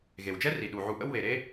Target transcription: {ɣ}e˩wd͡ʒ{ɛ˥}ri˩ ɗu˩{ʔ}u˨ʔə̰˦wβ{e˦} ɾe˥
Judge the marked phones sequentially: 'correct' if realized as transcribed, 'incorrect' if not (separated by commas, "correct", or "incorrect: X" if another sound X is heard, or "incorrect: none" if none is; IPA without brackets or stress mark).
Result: correct, correct, incorrect: ʕ, incorrect: e˩